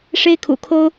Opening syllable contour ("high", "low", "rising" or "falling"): high